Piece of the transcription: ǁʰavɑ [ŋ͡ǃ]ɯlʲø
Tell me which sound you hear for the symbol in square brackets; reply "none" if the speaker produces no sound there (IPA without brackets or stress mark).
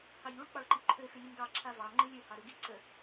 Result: ŋ͡ǃ